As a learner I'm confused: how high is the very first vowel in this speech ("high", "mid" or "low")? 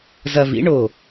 low